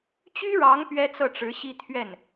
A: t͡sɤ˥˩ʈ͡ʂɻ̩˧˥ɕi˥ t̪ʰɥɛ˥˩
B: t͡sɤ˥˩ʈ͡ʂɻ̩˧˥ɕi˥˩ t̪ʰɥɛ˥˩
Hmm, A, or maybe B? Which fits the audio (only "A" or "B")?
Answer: A